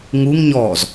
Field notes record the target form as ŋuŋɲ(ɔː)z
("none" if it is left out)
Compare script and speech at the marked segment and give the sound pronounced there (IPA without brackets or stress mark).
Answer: ɔː